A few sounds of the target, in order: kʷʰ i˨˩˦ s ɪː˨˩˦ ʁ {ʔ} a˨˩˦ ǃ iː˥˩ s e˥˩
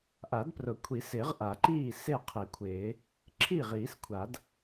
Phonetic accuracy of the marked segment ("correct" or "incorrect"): correct